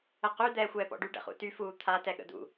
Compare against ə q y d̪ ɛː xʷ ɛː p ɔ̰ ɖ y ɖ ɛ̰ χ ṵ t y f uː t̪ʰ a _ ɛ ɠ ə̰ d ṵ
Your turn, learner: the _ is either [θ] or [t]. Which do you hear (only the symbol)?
t